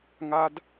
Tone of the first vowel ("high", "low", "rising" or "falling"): high